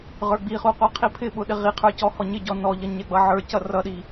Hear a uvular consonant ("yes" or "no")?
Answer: yes